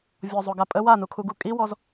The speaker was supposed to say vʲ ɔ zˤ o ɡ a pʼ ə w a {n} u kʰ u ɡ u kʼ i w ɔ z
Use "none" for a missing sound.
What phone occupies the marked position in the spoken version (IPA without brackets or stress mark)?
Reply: n